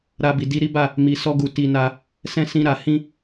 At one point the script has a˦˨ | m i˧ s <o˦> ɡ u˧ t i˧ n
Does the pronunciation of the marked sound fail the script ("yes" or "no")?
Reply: yes